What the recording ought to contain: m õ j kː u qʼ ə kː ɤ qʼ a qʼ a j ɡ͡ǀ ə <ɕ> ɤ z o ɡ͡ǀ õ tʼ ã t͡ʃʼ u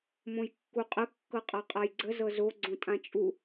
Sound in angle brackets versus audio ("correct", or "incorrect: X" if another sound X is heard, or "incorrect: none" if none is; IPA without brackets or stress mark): incorrect: z